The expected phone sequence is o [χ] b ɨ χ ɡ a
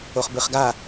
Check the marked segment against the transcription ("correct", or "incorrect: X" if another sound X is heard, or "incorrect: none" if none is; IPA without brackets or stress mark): correct